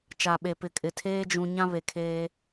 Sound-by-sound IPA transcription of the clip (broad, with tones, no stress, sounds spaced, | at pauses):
t͡ʃ a˨ ɓ e˨ p ɪ˨ kʼ ɪ˨ tʰ eː˦ d͡ʒ ũ˨ ɲ ã˦ β e˨ kʰ eː˦